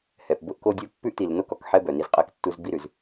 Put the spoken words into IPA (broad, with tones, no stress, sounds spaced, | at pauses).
h ɛ˨ p b ʊ˦ ʔ k o˦ dʲ o˦ pː ʉ˦ ʔ t i˨ l n o˦ k ɔ˨ k ħ ɛ˦ b œ˨ n i˦ z qʼ ɛ˦ k tː u˦ z b i˦ ɾ ʉ˨ z